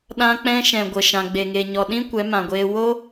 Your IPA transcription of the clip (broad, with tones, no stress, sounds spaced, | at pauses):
ɗ ã˧ k͡p ɛ̃˧ ʃ ɛ̃˨ ɡʷ ə˨ ʃ ã˨ ɡ͡b e˨ ŋ e˨ ɲ ɔ˨ ɗ ĩ˦ kʷ ɛ˨˦ m ã˨ ɡʷ eː˧ w o˦